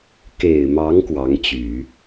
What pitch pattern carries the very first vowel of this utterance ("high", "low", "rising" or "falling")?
low